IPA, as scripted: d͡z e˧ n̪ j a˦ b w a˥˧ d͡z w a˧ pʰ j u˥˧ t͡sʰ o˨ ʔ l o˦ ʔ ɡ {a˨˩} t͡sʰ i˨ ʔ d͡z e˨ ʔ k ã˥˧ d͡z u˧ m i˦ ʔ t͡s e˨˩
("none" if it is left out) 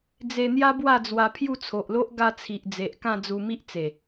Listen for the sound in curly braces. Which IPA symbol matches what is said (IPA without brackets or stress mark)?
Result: a˧